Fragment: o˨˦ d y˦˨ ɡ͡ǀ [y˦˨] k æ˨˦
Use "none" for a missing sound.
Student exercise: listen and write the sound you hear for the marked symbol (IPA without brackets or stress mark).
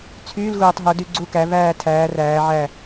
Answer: u˦˨